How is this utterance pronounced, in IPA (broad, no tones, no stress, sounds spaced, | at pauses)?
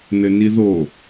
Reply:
n ɘ n i ð o